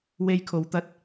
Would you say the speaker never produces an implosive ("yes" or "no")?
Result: yes